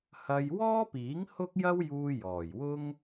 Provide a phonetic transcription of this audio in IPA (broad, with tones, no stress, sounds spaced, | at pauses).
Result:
h ɐ˧ j w ɔː˥ p iː˨˥ ŋ h ʊ˥ k̚ j ɐ˥ w j uː˧ j ɔː˨˩ j w ʊ˥ ŋ